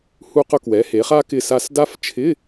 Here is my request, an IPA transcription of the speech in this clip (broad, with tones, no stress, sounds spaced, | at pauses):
h u˧ q ʊ˧ k w ɛ˩˧ h e˩˧ χ a˧ k ɪ˧ s a˧ s d a˦˥ f t͡ʃʰ ɪ˧˥˧